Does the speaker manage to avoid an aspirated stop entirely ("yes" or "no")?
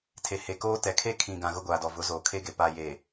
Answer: no